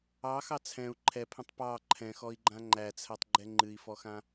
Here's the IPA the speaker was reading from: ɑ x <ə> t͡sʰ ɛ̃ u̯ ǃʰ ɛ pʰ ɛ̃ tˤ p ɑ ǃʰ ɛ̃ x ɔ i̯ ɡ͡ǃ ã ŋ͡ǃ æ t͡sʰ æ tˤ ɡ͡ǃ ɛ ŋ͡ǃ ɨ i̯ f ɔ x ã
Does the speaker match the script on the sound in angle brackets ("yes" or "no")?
no